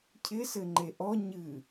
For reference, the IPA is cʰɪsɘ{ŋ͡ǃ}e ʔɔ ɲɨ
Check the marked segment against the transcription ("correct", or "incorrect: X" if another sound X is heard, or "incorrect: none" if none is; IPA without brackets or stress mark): correct